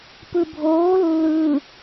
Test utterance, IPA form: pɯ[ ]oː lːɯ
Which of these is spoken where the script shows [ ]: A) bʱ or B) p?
A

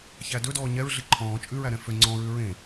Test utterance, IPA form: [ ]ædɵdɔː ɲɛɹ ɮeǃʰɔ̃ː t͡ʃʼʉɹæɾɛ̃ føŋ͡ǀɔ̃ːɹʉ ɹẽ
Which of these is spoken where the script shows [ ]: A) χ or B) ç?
B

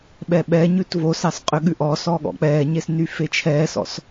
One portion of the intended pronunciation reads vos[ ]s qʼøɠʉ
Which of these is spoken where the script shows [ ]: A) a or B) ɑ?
B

